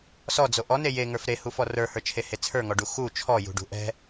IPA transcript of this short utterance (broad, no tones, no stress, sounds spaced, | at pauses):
s ɔ d͡z o ʔ ɔ n e j e ŋ ə˞ f ɾ e h u f ɔ r ə˞ h ə˞ t͡ʃʰ e h e t͡sʰ ə˞ ŋ ɔ ɖ u x u t͡ʃʰ ɔ j ṳ ɖ ṳ ʔ ɛ̤